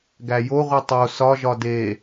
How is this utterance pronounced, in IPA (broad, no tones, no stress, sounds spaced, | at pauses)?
ɡ æ j o ʁʷ i tˤ o s ɒ ʒ ɒ d e